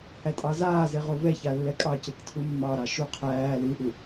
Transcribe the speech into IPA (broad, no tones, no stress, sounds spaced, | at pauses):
h æ tʼ ɑ z aː z e ʁ o v ɛ ç a lː ɛ kʼ ɑ c e k tʰ u mː ɑ ɾ ɑ ʃ u qʰ æː l ɨ ʔ u